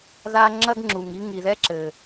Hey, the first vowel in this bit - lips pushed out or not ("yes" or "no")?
no